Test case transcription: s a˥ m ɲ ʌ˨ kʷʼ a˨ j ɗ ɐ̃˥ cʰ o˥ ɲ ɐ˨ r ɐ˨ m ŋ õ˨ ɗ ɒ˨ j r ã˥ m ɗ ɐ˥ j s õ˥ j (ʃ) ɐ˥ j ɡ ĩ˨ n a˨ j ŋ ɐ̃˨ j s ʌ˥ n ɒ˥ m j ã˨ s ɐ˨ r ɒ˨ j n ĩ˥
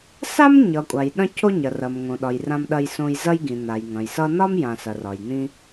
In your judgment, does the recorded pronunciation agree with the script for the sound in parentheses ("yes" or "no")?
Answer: no